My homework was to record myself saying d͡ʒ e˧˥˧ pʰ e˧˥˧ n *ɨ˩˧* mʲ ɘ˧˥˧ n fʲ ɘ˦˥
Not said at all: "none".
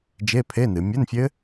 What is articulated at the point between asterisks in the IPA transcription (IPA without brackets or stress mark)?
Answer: ɨ˩˧